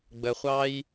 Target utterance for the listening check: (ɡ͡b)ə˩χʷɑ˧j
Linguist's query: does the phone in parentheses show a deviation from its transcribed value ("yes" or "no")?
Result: no